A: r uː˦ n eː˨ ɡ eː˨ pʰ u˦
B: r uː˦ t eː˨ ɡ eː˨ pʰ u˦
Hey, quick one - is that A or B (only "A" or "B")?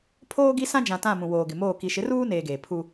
A